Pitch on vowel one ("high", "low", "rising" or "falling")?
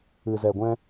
low